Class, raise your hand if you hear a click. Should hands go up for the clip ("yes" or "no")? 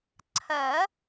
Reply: yes